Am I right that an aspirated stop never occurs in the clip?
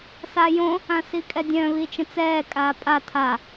no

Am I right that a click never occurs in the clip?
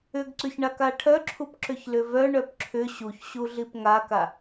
no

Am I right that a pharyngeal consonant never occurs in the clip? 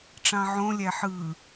no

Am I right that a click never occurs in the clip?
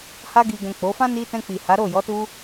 yes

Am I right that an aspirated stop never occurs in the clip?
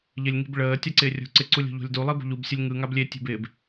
yes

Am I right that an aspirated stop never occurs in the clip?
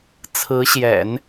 no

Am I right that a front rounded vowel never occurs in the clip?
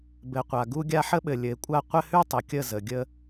yes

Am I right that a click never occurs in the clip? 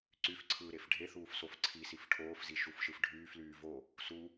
no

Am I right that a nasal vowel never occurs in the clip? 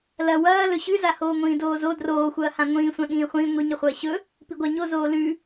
no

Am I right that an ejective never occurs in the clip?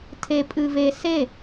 no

